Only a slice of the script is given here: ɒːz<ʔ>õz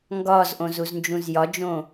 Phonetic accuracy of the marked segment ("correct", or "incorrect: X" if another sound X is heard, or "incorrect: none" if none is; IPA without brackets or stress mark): correct